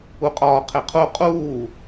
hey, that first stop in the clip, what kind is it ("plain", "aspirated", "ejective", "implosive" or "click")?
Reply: ejective